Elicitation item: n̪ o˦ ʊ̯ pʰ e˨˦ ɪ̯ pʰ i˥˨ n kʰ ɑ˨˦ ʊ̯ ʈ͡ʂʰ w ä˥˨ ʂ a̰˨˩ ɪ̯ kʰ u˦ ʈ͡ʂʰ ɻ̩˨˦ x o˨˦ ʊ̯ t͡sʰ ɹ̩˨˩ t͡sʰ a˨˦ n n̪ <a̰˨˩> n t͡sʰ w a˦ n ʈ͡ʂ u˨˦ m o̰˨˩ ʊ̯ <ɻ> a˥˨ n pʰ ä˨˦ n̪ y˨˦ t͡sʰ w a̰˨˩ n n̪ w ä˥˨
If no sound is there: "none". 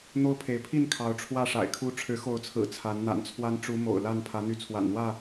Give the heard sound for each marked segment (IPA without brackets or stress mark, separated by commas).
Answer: a̰˨˩, l